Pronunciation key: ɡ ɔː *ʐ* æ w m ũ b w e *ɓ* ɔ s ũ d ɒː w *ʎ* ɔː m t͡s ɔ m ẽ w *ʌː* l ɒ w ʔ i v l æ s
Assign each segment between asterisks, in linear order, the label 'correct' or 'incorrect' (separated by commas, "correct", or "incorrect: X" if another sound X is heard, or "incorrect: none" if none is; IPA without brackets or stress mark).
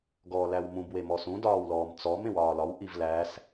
incorrect: l, incorrect: m, incorrect: l, incorrect: ɒː